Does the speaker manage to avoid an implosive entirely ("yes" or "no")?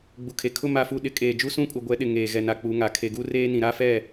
no